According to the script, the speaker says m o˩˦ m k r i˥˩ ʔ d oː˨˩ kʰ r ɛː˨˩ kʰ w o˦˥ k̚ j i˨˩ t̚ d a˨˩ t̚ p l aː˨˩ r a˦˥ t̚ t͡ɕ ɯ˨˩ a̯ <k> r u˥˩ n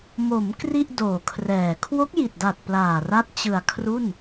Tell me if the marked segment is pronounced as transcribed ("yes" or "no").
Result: no